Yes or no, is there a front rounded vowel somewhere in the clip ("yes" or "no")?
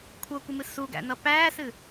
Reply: no